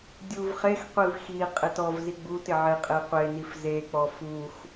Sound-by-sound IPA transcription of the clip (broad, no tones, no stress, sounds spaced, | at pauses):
dʲ u v χ e x qʷ i v x i qʼ ɪ t ɔ v z i ɡ͡b u t ɪ ʕ e qʼ e qʷ e n i f z e k͡p ɔ f u x